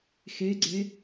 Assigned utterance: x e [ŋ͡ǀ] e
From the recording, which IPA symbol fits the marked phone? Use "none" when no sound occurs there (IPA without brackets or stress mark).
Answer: ɡ͡ǀ